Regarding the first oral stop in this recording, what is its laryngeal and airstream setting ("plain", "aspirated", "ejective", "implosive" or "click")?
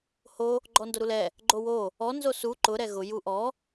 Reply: click